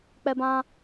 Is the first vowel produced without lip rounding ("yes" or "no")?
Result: yes